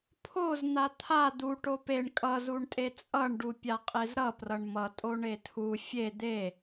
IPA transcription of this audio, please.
pʰ o z n̪ a t̪ʰ a d̪ u ʈ o p e ɳ kʼ ʌ z u ɳ tʼ e t͡sʼ ʌ ɳ ɖ u pʲ a qʼ e z ɾ ʌ p r ʌ ɳ m ʌ tʼ o ɳ e tʰ u fʲ e d̪ e

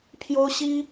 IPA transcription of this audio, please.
pʰ j o˥ ʊ̯ ɕ i˥

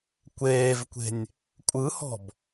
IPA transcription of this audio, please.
kʷ eː v kʷ e̤ nʲ | kʷʼ ɯ h ɔ̤ b

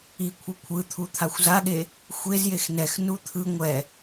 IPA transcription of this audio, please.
i kʷʰ ɤ kʷʰ ɯ t̪ʰ u t̪ʰ a xʷ z a ɠ e | xʷ e z j e x n ɛ x n u t̪ʰ ɯ ŋʷ ɛ

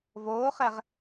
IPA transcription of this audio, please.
v oː χ ɛ ʁ

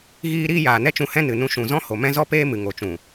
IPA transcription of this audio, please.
ɣ iː˧ ɾ iː˦ j aː˨ n ɛ˦ t͡ʃ ũ˧ h ɛ̃˦ n ɨ˨ n ũ˧ ʃ ũ˨ z ɔ̃˦ h o˨ m ɛ̃˦ z ɔ˦ p eː˦ m ɨ˨ ŋ o˨ t͡ʃ ũ˨

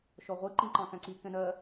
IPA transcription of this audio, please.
ʃ ɔ ʁʷ i ǃ ĩ ǃ ɑ̃ k æ̃ ǀ i k ɛ̃ n ɜ

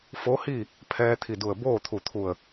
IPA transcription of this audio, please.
f o˧˥ h i˥˨ | pʰ ɛː˧ t̪ʰ i˧˩ d u˧˩ ə̯ b oː˥˨ t̪ʰ u˧˩ t̪ʰ u˧˩ ə̯

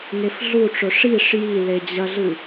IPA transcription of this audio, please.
ŋ e f ɮ u ʈ͡ʂ ɵ ʂ i ʂ j i l e d͡ʑ ɐ ɮ ɨ

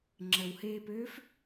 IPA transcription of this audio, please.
ŋ͡ǁ ə w h eː p øː f

